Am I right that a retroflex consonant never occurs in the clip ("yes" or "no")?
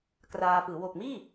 yes